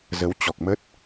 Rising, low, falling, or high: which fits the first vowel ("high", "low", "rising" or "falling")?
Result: rising